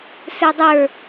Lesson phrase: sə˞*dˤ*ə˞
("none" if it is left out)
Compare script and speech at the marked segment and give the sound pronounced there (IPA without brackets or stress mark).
dˤ